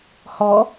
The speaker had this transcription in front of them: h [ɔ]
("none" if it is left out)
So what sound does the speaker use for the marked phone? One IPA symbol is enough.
ɔ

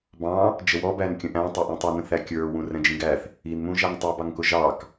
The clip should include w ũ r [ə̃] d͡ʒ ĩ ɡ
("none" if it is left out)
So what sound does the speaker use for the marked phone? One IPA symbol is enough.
ɛ̃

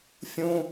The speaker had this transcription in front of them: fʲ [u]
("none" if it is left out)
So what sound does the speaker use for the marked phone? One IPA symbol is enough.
ũ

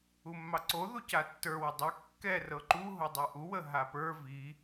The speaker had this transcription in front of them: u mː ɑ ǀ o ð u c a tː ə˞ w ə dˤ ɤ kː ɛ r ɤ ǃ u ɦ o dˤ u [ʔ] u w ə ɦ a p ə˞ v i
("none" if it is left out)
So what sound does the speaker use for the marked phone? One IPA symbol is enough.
ʔ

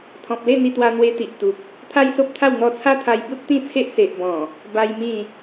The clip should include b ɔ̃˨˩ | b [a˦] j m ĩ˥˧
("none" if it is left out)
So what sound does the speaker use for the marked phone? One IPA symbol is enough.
a˦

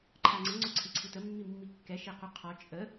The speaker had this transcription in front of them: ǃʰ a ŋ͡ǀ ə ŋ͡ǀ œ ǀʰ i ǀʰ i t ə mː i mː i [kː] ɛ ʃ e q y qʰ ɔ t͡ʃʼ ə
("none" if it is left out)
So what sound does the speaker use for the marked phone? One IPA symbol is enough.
kː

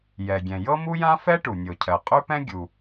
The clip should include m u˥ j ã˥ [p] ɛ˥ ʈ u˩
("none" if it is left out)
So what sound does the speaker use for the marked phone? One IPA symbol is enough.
f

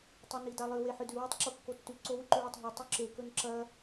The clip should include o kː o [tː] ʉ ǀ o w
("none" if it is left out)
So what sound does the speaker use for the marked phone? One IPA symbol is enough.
tː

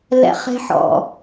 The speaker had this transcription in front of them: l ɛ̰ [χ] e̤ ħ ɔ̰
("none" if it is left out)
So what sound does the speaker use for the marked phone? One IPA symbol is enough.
χ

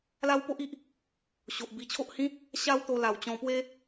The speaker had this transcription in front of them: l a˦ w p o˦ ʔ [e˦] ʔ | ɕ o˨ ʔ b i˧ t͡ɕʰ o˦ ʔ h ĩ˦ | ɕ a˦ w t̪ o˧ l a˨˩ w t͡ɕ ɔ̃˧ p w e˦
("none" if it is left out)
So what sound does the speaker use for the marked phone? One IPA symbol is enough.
i˦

